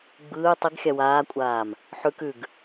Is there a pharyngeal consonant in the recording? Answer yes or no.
yes